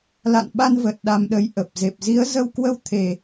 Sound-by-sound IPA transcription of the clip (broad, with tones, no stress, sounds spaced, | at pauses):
l a̰˧˨ n ɓ a˧ n v ə˨˩ t̚ ɗ a˧ m ɗ ə˨˦ j ʔ ə˨˩ p̚ z e˨˩ p̚ z i˨˦ ə̯ z ə˧ w k w ə˧ w t̪ʰ e˨˩